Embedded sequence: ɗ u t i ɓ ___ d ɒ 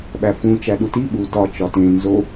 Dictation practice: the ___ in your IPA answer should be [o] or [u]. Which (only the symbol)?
u